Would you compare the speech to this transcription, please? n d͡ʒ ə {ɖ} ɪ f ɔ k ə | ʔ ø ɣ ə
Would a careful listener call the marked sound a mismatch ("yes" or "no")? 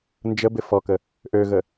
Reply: yes